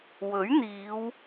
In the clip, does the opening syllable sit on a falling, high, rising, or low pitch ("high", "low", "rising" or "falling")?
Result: rising